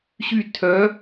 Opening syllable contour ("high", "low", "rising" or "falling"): falling